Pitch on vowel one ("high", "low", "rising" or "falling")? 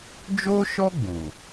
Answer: high